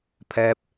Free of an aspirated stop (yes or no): no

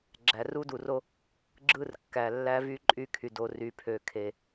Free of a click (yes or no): no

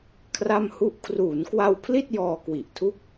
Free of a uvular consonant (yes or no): yes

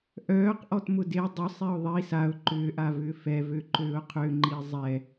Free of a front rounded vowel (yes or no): no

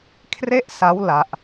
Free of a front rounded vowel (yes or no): yes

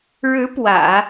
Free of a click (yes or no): yes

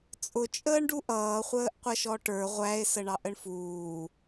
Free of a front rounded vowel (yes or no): yes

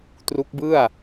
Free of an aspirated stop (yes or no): yes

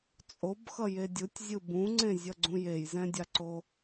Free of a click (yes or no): no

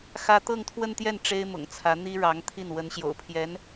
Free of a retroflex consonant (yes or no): no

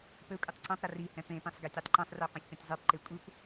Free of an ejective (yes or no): no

